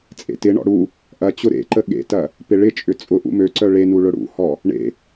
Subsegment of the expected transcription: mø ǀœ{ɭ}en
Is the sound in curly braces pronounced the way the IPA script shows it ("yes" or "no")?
yes